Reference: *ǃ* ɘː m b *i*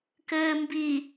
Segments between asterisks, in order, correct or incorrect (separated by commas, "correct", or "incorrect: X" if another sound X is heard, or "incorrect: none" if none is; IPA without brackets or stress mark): incorrect: k, correct